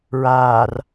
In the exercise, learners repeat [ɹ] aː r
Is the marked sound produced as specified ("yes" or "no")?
yes